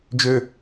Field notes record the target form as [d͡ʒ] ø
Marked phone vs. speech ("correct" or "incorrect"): correct